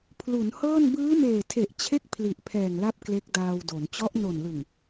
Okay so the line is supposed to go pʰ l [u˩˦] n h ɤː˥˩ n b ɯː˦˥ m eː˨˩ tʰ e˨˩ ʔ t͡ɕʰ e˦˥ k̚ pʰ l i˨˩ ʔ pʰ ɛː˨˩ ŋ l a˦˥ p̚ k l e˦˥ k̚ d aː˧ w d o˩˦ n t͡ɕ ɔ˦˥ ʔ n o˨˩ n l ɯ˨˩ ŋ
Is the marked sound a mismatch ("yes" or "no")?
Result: no